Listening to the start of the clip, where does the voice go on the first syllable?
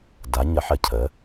rising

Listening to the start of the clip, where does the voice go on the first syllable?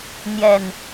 low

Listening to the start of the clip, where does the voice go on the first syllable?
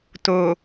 low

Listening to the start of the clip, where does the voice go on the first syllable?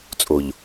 low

